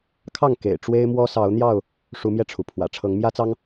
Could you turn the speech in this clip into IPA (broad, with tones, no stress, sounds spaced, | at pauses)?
kʰ ɑ˥˨ ŋ k ḛ˨˩ ɪ̯ ʈ͡ʂ w e˦ ɪ̯ m w ɔ˦ s ɑ˨˦ ʊ̯ n̪ j ɑ˥˨ ʊ̯ | ʂ u˨˦ m j ɛ˧ ʈ͡ʂʰ u˩ pʰ w ä̰˨˩ ʈ͡ʂʰ ɤ˨˦ ŋ m j ä˦ t͡s ɑ˦ ŋ